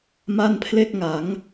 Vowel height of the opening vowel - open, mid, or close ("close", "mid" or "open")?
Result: open